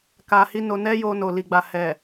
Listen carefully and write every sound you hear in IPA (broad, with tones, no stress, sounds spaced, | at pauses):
k a˧ h i˦ n o˧ n ɛ˦ j o˧ n o˨ l i˨ ɡ͡b a˨ h ɛ˨